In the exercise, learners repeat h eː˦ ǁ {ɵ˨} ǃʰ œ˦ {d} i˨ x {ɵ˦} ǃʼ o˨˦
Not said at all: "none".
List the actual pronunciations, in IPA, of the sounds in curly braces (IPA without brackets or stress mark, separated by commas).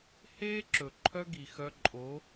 ɵ˨, ɡ, œ˦